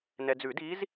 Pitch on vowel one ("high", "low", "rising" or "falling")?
low